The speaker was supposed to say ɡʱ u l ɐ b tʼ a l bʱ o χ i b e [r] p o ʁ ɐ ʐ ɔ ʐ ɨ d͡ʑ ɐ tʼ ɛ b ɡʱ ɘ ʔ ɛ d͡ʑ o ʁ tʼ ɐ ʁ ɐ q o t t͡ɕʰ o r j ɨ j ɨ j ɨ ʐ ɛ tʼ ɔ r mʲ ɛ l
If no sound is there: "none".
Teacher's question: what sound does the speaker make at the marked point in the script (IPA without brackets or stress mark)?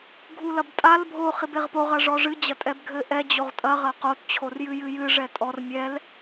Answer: ʁ